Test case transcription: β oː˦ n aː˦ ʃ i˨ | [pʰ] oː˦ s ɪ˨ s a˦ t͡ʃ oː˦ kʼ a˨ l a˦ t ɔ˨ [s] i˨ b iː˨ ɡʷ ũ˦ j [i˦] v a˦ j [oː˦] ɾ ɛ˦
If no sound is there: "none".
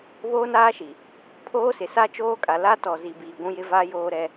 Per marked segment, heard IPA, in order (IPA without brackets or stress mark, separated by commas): pʰ, z, ɪ˦, oː˦